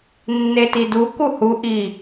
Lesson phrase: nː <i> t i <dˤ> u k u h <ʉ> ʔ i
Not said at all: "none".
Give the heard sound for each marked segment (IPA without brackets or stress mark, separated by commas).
e, d, u